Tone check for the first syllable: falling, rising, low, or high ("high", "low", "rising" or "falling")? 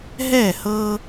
falling